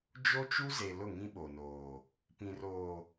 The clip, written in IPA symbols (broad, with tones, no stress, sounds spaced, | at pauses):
d͡ʒ o˦ t͡ʃ u˦ z e˨ l ʊ˦˨ ŋ ĩ˦ ɓ o˨ n oː˨ | p ĩ˨ r oː˨